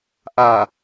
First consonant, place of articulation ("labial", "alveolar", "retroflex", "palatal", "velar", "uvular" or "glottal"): glottal